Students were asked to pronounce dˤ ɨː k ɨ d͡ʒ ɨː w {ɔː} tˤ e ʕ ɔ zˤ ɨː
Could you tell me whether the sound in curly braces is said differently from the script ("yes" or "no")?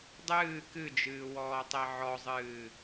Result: no